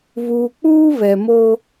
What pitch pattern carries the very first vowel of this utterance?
low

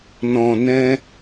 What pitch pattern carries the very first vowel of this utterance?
low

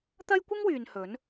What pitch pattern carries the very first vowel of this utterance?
high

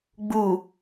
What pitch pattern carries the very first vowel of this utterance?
low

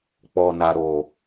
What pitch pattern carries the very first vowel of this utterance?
low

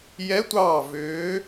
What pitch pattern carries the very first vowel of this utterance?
rising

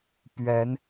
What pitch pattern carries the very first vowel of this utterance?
rising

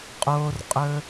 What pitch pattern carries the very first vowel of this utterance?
low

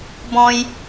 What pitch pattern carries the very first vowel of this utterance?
high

